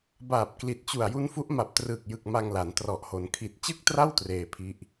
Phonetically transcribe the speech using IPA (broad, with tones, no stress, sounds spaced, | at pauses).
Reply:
b aː˨˩ p̚ k l i˨˩ t̚ t͡ɕ u˨˩ a̯ j u˦˥ n f u˦˥ ʔ m a˨˩ p̚ t r ɯː˨˩ k̚ j ɯ˨˩ k̚ m a˧ ŋ l a˩˦ n t r ɔ˨˩ ʔ h o˩˦ n kʰ i˨˩ t̚ t͡ɕ ɯ˥˩ k̚ t r a˥˩ w t r eː˧ pʰ i˦˥ ʔ